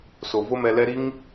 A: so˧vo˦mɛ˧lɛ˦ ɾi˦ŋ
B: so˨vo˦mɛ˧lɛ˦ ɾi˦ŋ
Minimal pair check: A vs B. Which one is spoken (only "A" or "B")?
B